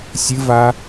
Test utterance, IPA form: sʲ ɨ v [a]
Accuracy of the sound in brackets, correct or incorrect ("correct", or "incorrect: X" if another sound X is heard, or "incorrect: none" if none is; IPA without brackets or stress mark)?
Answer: correct